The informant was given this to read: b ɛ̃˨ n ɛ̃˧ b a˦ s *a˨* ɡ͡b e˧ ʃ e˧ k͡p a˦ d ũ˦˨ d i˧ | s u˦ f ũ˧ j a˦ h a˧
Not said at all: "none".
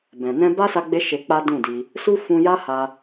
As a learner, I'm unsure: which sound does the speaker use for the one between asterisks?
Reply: a˧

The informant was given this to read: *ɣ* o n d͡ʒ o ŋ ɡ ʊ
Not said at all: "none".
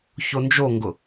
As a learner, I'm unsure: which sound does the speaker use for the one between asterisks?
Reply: ç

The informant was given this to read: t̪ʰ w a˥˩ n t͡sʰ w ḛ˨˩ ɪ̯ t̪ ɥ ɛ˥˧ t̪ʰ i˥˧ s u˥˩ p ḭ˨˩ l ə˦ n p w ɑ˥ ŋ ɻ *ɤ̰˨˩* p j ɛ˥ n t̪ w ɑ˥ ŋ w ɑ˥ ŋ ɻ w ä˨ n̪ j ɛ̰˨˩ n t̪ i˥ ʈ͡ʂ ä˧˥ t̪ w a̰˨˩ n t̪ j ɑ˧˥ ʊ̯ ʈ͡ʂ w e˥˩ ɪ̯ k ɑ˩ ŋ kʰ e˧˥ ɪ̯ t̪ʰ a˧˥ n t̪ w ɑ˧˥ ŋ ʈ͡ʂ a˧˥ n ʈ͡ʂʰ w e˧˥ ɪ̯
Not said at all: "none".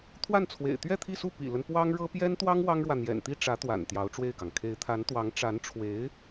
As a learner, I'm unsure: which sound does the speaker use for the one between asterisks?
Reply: ɤ˥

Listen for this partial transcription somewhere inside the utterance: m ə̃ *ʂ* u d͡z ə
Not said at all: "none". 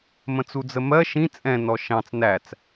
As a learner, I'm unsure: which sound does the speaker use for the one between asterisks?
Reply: t͡s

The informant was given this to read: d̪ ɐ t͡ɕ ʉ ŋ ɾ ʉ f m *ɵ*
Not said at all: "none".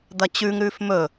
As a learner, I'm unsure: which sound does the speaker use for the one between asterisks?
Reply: ɵ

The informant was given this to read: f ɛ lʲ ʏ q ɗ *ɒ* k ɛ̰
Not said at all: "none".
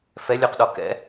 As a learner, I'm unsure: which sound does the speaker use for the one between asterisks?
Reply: ɒ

